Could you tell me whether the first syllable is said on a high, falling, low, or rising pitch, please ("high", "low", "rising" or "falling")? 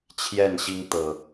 falling